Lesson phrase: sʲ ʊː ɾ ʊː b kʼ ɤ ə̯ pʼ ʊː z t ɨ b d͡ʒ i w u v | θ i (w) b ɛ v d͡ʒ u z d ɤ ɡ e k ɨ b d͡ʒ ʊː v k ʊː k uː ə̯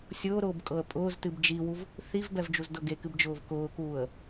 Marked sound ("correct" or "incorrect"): incorrect